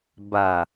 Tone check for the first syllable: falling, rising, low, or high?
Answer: low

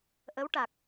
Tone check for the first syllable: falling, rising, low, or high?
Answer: rising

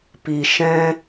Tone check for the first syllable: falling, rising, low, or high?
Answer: low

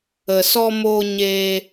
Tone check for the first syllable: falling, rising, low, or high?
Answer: low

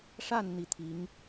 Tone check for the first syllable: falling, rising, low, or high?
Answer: falling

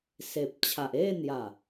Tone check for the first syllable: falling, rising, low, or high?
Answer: low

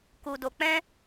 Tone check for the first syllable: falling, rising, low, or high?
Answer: low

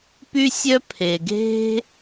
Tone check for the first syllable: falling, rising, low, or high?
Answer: high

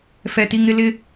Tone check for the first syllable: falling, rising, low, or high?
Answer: high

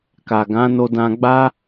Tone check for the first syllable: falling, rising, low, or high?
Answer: low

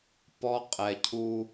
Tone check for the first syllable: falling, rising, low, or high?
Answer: high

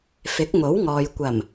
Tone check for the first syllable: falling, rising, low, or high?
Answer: rising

